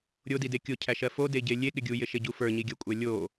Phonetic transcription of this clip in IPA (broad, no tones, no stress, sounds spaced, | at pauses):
ɾʲ o d i d e kʲ o cʰ æ ʃ ɜ f o d e ɟ e lʲ e ɠ ɪ ɡʲ u j ɪ ʃ e ɟ u f ə˞ ɲ i ɡʲ ɜ kʷʼ æ lʲ o